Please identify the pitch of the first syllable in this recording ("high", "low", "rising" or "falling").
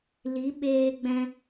rising